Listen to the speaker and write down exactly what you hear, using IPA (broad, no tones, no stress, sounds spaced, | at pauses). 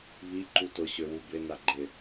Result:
β i ǃ u t ʊ ɕ ø w u b ɪ n a ɡ͡ǃ ɪ